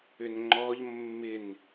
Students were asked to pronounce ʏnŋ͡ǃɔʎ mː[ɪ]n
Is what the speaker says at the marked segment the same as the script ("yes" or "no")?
yes